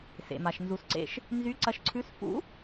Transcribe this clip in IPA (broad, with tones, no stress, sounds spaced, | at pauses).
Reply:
s ḛ˩ m a˩ ʃ n z u˩ s ǀ ḛ˧ ʃ | n z y˧˥ ǀ ɐ˧ ʃ ǀʰ ʉ˧˥ s f ṵ˧˥